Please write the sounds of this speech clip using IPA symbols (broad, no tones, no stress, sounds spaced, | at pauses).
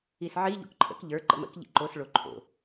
i s ʕ i ʎ o̰ k ǃʰ ə̰ k ʎ ə˞ ǃ ə̰ m ə̰ k ʎ ḭ ǃ o s ɭ o ǃʰ o̰